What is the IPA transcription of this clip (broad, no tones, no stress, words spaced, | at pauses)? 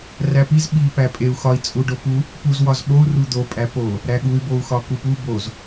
ræpiz ɓi pæpʼeu̯ xɒi̯ t͡sʼuɖopu | puz wɒzɓou̯ rud̪o pʼæpo | ɾæɠuy̯ bou̯xɒkupu boz